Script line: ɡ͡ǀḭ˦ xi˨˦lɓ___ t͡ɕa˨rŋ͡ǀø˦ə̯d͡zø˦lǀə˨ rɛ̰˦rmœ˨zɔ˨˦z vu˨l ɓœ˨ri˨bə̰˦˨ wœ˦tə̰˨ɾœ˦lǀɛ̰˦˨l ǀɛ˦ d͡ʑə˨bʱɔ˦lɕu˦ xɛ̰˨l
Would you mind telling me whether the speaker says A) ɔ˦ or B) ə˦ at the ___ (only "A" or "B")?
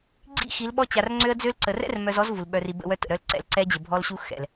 A